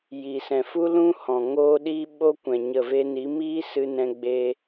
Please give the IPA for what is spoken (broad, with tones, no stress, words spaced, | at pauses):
ji˨sɛ̃˨ fu˦lũ˦hɔ̃˨ ŋoː˦ɗi˦ ɓo˦kʷɛ̃˨ ɲə˦˨ve˦ ni˨˦miː˦sɨ˧nɛ̃˧ ɡ͡be˦